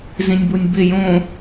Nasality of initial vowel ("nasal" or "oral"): nasal